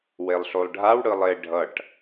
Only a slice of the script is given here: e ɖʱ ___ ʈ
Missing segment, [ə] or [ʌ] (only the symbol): ʌ